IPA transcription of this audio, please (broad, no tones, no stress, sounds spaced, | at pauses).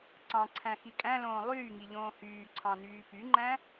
ǀ ɑ̃ ǀʰ æ̃ x i kʼ æ̃ l õː lˠ yː ŋ i ʎ õː h yː ǀʰ ɑ̃ n yː p y ŋ͡ǃ æ̃